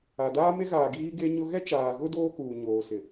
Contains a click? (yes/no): no